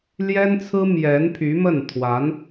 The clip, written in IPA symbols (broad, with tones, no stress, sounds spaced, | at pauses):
l j ɛ˥ n t͡sʰ ɹ̩˥ m j ɛ˧˥ n pʰ y˧˥ m ə˥˩ n t̪ʰ w a˧˥ n